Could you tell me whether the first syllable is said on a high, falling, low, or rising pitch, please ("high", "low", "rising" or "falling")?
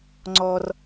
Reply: low